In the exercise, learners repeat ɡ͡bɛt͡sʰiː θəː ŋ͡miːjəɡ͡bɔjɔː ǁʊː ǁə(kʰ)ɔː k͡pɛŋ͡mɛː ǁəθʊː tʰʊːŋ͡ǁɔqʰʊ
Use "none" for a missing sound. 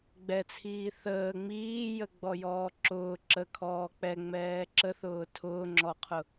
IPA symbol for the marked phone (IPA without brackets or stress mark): kʰ